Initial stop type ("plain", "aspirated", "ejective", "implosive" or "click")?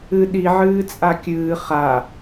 implosive